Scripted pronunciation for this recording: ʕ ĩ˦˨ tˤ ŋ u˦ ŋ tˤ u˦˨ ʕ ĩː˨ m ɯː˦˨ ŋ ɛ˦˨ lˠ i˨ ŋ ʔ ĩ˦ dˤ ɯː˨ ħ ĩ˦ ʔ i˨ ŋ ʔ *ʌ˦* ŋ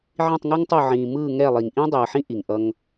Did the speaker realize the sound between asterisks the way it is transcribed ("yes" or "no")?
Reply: yes